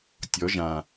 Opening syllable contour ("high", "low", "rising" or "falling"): rising